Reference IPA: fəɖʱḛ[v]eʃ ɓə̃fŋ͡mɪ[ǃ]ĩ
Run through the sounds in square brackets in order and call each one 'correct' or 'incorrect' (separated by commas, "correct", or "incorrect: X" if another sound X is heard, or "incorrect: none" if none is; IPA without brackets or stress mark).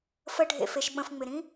incorrect: f, incorrect: ɾ